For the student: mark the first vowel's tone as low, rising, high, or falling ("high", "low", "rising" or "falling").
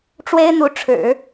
high